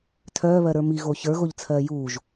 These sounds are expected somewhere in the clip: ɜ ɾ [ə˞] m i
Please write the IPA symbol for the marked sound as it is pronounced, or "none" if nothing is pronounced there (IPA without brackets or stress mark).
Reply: ə˞